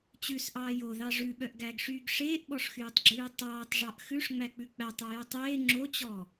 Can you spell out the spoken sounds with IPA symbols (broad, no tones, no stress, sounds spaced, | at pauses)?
t͡ɕ ʉ s ʔ ɑː j o ð ɑ ʐ ʉ ɓ œ ʔ ɡ æ ɡ ʂ yː ɡ ʂ eː ʔ ɓ ɔ ʂ x yː tˤ ɡ͡ǁ ʉː tˤ ɑː tˤ ʐ ɑ ʔ x ʉ ʂ ŋ͡m æ k͡p ʉ k͡p æ tˤ o j œ tˤ eː ŋ͡ǁ o t͡ɕ ɔ